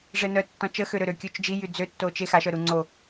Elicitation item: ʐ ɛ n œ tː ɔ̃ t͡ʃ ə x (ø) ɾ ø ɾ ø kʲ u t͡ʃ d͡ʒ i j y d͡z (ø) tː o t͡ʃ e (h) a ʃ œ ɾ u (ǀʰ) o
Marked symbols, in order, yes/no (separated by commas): yes, yes, no, no